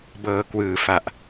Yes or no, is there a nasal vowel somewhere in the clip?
no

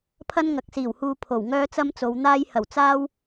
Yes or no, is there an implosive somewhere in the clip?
no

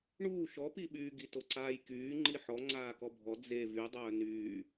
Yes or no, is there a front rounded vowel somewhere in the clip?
yes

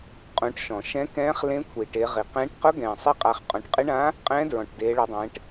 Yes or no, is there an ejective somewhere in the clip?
yes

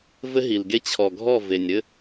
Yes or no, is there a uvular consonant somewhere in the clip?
no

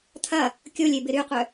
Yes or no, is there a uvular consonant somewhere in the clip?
yes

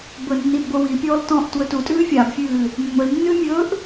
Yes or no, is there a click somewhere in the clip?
no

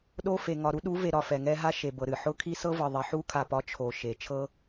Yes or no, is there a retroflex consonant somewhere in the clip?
no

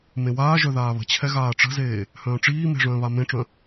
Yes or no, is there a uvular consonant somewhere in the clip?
no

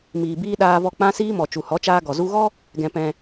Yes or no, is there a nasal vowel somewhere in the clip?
yes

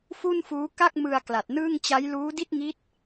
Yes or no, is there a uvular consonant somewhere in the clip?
no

